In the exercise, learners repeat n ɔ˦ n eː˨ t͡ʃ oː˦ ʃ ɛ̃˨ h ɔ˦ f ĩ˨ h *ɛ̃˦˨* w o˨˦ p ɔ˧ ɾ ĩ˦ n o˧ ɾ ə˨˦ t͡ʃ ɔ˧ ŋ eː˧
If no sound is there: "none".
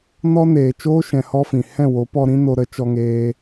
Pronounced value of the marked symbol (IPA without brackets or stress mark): ɛ̃˦˨